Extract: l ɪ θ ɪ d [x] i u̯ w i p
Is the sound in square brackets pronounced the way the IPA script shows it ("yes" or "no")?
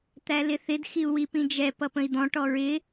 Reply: yes